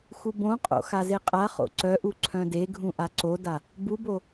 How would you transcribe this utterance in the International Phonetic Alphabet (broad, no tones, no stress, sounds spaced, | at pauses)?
x u b õ qʼ o̰ x a z e qʼ a χ o̰ ǀ œ ʔ u ǀʰ œ̃ d e ɡʱ ũ ʔ a ǀ o d a | b u b o